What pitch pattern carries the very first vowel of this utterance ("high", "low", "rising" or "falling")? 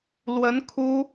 rising